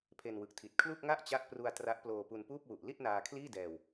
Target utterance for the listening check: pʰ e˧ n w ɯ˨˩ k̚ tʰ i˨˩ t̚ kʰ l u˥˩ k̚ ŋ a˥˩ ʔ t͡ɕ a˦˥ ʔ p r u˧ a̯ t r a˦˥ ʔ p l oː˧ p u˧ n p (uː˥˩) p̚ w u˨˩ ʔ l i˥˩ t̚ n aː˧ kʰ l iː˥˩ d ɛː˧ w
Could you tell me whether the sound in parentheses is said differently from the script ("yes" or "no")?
no